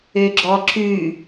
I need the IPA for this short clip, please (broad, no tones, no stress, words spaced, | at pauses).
øɡ͡ǁɔǁʉ